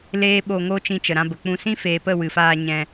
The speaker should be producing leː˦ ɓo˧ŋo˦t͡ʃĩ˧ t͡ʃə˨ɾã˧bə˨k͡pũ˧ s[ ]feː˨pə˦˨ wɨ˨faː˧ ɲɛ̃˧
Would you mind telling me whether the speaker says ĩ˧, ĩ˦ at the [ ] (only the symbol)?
ĩ˦